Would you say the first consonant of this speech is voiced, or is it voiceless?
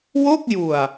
voiced